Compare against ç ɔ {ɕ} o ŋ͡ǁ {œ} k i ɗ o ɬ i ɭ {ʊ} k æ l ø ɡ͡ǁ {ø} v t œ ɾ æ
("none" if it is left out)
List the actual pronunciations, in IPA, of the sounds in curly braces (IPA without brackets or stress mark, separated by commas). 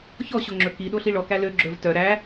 ɕ, ɵ, ɔ, ɵ